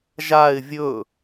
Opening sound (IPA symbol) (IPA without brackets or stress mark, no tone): ʒ